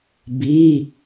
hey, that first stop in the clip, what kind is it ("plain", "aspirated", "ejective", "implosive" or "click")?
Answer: plain